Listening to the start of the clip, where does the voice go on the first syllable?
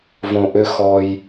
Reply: low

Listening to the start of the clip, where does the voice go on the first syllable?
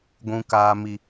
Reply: low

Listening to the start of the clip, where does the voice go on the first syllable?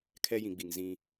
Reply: high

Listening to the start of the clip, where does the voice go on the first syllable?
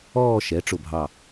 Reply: falling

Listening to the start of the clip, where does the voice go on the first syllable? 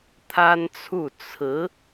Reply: high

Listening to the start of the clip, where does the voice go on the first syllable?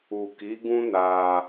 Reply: low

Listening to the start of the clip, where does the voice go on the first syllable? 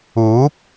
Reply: rising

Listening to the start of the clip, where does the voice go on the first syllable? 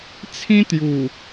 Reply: high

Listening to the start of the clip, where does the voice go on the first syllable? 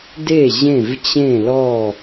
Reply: falling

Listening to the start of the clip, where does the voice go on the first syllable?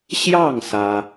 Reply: falling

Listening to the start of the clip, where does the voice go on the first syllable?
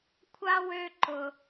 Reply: high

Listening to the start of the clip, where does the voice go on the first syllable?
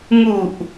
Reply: low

